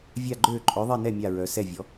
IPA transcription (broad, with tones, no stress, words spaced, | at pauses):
vʲa˥˧ɡ͡ǃøː˥˧ ǃʼœ˧˥ðˤi˥˧nɛ˥˧ mʲa˥˧ɹœ˧˥ sɛ˥˧vʲɔ˧˥